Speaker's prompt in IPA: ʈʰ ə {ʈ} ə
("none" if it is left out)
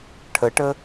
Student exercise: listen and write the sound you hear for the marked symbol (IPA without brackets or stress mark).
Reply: ʈ